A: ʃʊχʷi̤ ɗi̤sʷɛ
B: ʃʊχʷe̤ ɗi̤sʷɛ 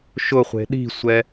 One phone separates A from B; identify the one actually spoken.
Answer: B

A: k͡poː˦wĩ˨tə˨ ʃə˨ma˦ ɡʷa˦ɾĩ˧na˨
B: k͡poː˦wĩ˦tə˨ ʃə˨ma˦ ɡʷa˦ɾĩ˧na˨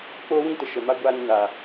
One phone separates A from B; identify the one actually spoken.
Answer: B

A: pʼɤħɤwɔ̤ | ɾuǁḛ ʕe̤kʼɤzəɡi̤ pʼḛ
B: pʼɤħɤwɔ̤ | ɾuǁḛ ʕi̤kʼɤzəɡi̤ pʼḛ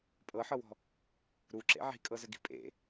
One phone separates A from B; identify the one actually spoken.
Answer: B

